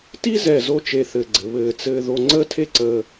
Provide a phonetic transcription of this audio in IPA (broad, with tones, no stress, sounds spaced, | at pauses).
t i˥ z ɛ˧˩ z o˥˧ t͡ʃ e˧ θ ɘ˧˩ ɡ͡ǀ ɘ˩˧ β ɘː˧˩ t͡s ɘː˧ ð o˧ ŋ͡ǀ əː˥ tʰ e˥ ǀ əː˧